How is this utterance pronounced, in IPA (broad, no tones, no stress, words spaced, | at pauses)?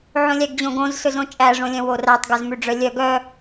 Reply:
ʕõlʲæɡd͡ʑõɡõz sɵzõt͡ʃʼæ ʐõlʲœ̃worætˤ ɡœzmʉɖ͡ʐœlʲœ ɡœ